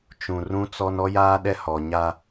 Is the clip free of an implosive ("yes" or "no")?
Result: no